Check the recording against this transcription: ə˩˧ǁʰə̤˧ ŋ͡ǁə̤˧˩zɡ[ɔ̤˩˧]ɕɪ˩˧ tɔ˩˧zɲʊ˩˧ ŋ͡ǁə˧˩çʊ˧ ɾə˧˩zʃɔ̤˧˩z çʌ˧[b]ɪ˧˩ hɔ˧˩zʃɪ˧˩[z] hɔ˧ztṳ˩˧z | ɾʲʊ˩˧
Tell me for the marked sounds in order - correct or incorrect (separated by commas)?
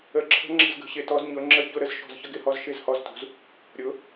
incorrect, incorrect, correct